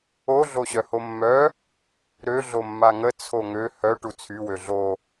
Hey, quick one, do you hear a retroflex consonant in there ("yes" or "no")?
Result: yes